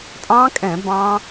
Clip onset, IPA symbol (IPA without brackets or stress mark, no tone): tʼ